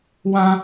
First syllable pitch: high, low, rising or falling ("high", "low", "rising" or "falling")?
high